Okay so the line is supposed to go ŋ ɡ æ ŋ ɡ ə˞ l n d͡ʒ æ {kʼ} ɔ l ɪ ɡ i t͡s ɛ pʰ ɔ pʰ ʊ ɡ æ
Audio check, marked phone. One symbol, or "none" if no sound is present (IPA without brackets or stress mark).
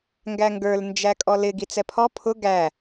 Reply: kʼ